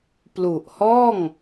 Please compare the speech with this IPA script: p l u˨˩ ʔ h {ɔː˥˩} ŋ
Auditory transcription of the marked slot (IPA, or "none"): ɔː˥˩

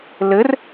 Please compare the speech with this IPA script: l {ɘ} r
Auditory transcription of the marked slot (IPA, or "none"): ɘ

